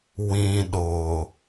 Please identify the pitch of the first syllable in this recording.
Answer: low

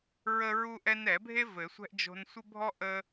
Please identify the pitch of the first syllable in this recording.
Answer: high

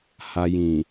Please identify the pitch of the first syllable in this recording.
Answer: low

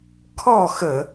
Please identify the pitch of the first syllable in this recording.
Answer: falling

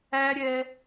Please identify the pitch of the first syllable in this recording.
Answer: high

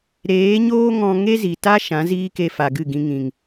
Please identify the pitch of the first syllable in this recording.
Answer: rising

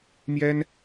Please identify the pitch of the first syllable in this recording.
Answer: high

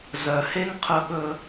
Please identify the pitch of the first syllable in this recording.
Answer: low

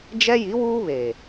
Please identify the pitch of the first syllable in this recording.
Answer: high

